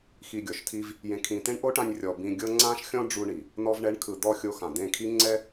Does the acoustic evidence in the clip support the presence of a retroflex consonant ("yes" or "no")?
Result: yes